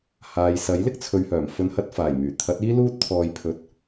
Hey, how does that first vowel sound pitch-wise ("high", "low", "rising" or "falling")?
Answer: low